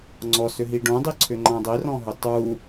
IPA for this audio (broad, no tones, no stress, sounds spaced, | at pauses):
ŋ͡ǀ ɔ s ʏ ɦ i ɖ õ dˤ i ǀʰ ʏ ŋ͡ǃ ã dˤ i r ɔ̃ ɦ ʏ tˤ u